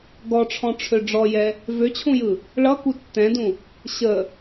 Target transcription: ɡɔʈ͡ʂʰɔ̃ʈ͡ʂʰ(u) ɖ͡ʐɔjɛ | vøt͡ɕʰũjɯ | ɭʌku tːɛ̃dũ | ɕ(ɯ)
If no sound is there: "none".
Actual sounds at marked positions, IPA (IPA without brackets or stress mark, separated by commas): ø, ə